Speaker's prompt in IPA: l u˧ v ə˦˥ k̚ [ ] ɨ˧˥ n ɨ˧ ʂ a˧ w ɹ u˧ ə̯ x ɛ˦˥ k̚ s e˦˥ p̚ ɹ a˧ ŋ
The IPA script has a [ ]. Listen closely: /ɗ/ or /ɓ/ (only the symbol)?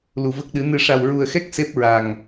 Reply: ɗ